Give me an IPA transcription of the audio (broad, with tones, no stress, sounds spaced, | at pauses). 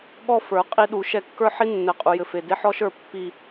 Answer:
ɠ ɔ˦ f ə˞˨˦ qʼ i˦ ɗ u˨˦ ʃ ɛ˦ kː ə˞˦ ħ i˦ nː ɛ˨ qʼ u˨ j ɘ˨ f e˨ d e˦ ħ ɔ˦ ʃ ə˞˦˨ pː i˦